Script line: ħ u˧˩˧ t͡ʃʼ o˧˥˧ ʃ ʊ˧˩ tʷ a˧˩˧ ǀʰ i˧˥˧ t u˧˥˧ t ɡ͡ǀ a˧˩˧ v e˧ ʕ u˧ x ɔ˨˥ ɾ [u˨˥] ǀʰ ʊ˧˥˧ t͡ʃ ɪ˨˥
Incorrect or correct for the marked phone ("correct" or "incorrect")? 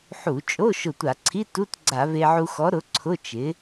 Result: incorrect